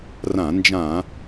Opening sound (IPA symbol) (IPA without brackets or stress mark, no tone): r